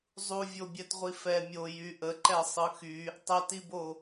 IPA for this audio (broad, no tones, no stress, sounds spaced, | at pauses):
zˤ u vʲ o bʲ ɛ t ʁʷ i f ɛ mʲ o j y ʔ ə ǃ ɛ sˤ ɯ x y | tˤ ɛ t i b o